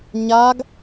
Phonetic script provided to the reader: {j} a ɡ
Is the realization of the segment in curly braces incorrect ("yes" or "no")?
yes